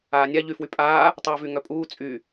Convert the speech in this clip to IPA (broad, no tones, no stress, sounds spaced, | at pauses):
aː nʲ a ʎ y f w y pʼ aː | tˤ ɘː v y ŋ œ pʼ uː t͡sʼ y